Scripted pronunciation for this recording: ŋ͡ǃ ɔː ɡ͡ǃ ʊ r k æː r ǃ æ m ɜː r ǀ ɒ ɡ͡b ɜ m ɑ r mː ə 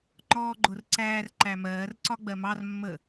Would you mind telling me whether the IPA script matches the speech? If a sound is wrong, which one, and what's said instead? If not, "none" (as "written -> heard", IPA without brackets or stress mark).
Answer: k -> ǀ